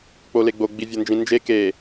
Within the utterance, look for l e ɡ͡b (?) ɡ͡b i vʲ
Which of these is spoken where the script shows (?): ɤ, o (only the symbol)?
o